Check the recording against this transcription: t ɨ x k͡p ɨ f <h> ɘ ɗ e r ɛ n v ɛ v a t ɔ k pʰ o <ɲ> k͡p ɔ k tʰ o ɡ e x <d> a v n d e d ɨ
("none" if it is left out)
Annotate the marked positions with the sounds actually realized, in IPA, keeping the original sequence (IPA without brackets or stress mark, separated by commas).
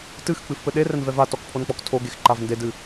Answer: p, n, ǃ